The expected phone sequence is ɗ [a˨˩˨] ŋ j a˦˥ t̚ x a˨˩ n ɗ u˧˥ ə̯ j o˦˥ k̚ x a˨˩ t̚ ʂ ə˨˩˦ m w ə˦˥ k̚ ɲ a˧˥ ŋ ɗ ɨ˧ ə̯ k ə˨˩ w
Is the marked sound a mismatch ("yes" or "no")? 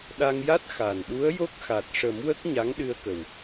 yes